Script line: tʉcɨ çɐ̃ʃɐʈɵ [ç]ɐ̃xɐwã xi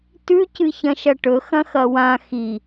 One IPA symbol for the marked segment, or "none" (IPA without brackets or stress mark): x